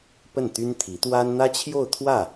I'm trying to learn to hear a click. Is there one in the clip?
no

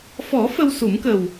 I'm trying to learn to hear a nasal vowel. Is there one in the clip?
no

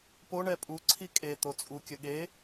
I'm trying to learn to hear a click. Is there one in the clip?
yes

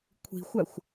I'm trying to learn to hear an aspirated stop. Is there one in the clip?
yes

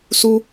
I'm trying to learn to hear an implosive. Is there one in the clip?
no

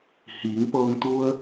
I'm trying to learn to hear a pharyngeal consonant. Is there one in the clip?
no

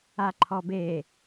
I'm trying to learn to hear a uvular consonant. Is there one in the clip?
no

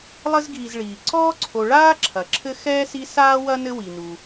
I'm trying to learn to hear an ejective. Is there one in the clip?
no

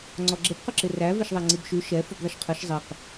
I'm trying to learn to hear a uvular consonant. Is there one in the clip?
yes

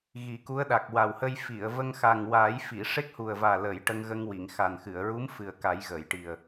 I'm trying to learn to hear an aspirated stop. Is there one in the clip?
no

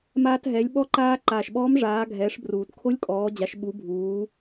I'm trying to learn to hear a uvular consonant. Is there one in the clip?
no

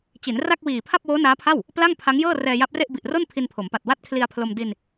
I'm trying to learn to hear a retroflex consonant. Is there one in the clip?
no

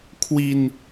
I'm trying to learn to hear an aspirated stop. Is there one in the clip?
yes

